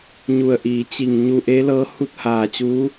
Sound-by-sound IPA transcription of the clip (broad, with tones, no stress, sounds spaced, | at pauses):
ɲ u˧˩ ə̯ ʔ iː˩˧ t͡ɕ i˧˩ ŋ ɲ u˧ ʔ e˧˥ l ɤː˧˥ h u˥˨ t̚ h aː˧˩ t͡ɕ uː˧˥